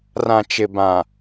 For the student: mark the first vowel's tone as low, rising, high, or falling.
low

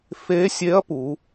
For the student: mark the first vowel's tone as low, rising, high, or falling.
rising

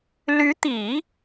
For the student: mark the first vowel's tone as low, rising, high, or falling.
rising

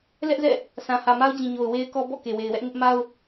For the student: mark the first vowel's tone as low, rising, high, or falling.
high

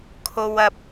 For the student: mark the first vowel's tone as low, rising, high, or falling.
low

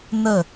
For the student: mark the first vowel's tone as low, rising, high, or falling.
falling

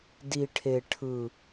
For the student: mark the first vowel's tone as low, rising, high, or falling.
low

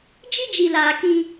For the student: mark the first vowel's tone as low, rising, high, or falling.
high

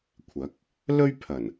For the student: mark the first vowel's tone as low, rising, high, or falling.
rising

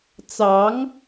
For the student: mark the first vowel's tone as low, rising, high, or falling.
rising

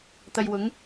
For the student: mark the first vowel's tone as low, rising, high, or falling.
low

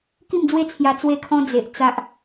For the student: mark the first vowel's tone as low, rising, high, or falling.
falling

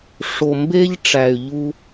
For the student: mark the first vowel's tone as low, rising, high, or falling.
low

